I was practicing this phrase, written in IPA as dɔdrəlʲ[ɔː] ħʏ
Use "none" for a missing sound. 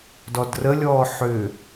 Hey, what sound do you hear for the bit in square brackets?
ɔː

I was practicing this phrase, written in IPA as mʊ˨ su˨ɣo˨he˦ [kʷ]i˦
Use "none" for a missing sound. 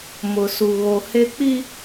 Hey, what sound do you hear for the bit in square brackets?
k͡p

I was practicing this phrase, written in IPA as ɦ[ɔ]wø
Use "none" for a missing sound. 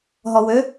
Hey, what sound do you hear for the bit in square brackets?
ɔ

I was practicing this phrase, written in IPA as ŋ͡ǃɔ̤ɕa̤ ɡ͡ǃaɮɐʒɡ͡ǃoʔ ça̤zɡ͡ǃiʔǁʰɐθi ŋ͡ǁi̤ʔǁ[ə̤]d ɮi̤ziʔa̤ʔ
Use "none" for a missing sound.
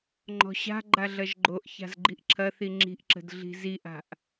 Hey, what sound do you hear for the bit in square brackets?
ə̤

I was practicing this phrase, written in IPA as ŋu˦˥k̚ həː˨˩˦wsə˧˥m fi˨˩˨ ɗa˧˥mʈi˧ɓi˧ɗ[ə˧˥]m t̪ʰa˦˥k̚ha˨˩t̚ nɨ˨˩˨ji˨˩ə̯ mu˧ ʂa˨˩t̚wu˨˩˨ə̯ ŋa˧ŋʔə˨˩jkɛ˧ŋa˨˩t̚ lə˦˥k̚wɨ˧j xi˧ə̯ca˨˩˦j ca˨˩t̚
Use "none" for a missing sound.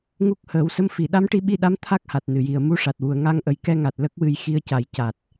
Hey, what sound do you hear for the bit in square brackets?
a˧˥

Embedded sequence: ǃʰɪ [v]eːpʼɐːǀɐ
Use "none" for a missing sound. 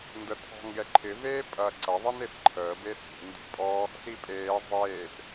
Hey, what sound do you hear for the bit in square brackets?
v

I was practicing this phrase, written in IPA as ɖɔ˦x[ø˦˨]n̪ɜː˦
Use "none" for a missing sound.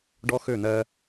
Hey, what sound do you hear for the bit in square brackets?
ø˦˨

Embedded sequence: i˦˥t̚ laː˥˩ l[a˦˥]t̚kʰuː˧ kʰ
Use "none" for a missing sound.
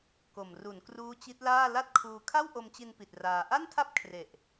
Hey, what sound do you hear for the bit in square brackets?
a˥˩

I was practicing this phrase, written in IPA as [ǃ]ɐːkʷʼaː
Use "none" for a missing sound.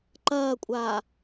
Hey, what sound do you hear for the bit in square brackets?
ǃ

